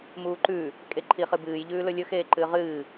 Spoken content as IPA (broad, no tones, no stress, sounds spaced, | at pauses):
m uː ǃ ʉ | kʼ e ǃʰ i χ ɨ b ɨː j ʎ ʉː l ɵ lʲ ɵ x eː ǃ ɨː ʁ ɨː